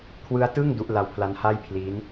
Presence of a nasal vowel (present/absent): absent